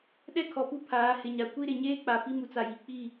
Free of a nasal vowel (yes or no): yes